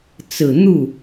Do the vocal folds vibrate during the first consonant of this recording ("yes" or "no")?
no